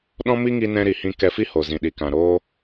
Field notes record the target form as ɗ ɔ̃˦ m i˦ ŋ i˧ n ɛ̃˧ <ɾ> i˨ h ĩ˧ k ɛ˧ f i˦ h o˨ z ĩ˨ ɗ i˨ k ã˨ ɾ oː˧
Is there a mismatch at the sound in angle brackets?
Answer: no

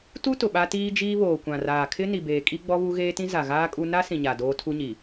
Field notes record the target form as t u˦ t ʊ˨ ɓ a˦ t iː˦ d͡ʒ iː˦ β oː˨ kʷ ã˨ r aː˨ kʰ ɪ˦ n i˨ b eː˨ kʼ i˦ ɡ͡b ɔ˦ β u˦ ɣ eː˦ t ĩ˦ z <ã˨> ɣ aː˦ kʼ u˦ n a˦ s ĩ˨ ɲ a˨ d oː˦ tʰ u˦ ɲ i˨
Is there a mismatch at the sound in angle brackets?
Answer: yes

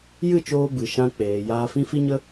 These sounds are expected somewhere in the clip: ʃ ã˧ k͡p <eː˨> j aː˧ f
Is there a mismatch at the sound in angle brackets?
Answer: no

